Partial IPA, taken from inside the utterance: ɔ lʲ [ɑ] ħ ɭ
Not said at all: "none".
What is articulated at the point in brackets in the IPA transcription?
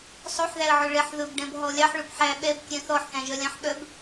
ɑ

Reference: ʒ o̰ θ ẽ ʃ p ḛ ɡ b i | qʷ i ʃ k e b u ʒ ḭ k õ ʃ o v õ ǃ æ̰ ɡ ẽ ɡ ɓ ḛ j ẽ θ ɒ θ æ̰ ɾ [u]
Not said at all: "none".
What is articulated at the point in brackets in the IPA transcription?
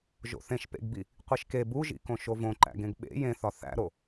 o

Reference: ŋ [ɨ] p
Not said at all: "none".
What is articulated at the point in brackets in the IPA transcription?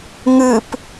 ɨ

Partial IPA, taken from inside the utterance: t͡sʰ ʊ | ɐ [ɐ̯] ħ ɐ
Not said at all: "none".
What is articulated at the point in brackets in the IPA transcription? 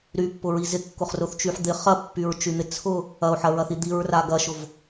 o̯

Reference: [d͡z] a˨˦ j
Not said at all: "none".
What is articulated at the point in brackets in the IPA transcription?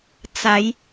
t͡s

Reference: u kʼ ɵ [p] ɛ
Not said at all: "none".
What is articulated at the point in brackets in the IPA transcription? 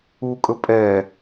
pʼ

